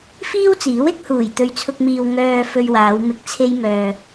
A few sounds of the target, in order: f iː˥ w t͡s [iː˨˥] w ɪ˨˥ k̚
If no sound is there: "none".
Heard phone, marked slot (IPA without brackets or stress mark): iː˨˥